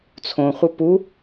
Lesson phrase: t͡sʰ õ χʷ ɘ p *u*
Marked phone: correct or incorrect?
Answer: correct